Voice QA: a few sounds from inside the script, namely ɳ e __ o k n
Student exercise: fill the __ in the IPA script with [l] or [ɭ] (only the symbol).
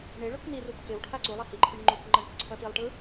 ɭ